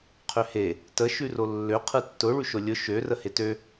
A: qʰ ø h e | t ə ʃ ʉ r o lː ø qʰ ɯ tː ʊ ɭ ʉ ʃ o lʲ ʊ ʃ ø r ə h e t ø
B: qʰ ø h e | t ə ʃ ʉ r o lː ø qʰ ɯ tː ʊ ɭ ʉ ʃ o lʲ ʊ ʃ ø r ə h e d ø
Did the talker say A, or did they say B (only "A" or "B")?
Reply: A